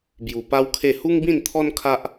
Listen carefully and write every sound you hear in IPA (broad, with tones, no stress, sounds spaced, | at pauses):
b j u˨˩ p a˦ w kʰ e˥˧ h u˦ ŋ b ĩ˥˧ n t̪ʰ ɔ˦ n kʰ a˦ ʔ